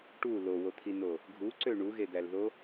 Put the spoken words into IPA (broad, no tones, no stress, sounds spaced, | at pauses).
ʈ u l o w o t̪ʰ i n o | ɡʱ u ǀ ø ɳ u ɣ e d̪ æ l ð o